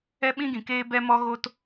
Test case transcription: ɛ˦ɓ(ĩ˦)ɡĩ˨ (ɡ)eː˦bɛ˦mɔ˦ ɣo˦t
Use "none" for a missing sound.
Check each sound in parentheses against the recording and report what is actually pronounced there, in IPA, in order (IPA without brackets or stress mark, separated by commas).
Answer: ĩ˦, k